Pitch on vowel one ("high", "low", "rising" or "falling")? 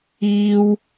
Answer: high